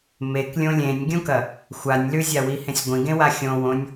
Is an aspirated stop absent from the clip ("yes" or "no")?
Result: yes